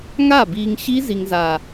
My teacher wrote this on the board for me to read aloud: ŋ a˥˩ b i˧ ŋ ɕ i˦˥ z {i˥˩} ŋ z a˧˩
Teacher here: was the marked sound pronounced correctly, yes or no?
no